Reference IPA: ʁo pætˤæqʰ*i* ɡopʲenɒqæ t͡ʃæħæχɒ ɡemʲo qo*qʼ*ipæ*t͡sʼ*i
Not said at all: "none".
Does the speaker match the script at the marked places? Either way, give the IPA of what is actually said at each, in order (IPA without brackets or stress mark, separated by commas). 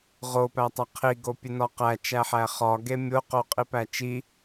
i, qʼ, t͡ʃ